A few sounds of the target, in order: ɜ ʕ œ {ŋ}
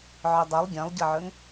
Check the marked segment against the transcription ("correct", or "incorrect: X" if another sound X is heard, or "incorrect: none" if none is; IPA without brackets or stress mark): correct